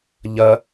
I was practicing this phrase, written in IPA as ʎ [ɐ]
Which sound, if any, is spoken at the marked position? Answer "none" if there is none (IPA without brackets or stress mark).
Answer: ɐ